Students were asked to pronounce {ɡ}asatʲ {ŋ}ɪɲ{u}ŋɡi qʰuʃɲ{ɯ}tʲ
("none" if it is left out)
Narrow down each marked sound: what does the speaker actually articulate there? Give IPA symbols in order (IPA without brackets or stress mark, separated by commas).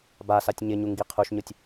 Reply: b, ɲ, u, ʊ